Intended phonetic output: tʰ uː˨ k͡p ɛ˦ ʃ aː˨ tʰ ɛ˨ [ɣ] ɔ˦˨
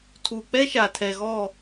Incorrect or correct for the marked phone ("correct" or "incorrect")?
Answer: correct